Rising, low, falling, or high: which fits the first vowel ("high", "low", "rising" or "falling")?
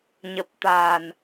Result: low